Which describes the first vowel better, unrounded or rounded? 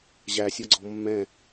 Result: unrounded